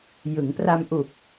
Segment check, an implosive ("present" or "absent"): absent